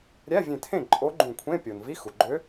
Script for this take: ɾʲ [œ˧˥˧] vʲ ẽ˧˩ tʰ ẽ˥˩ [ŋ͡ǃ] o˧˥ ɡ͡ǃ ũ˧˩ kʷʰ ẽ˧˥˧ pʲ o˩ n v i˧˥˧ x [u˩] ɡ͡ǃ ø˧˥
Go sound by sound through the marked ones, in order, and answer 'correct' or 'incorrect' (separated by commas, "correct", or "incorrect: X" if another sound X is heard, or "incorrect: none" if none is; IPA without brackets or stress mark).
incorrect: æ˧˥˧, incorrect: ǃʼ, correct